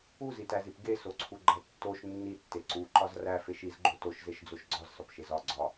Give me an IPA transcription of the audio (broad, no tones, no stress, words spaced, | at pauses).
uzitæzip ɡesoǀʰuɡ͡ǃæ tːoʃ nːitːe ǀu ǃɒzræ feʃizɡ͡ǃo toʃzeʃd͡zoʃ ɡ͡ǀɒzsɒpʃez ɒ ɡ͡ǀɒ